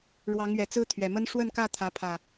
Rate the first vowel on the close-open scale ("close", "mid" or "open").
open